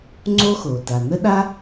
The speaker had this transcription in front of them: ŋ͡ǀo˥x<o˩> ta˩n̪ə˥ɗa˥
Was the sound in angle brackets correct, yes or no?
yes